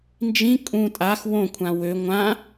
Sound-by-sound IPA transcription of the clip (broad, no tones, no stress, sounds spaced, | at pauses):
n d͡ʒ ĩ kʼ ũ tʼ a x w õ kʷʰ ã w ø ŋʷ ã